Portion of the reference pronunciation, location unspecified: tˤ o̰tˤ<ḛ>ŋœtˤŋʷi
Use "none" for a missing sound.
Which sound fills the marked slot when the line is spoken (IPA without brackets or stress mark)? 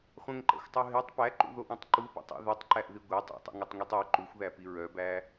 ɛ̰